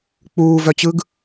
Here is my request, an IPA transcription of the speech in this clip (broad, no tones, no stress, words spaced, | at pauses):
k͡puːvœt͡ɕɯɡ